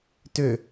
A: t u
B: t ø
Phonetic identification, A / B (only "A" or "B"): B